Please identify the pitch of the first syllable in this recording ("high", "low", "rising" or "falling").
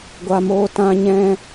low